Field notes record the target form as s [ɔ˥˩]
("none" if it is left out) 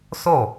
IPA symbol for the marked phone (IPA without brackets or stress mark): o˥˩